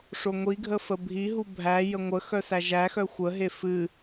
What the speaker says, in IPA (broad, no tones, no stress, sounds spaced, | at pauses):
ʂ o ŋʷ i ɡʱ ə f ə bʱ i ɦ u bʱ æ j ə ŋʷ ə x œ s æ ʒ æ x œ xʷ ə ɦ e f ɨ